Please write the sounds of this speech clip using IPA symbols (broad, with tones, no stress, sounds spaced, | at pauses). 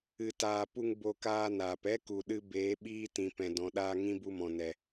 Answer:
ɨ˧ t aː˧ p u˦ ŋ b o˧ k aː˧ n aː˨ p ɛ˦ k u˨ ɗ ɨ˧ b eː˨˦ ɓ iː˦ t ĩ˨ p ɛ̃˨ d ɔ̃˨ ɗ aː˧ ŋ ĩ˦ b u˧ m ɔ̃˨ n ɛ˨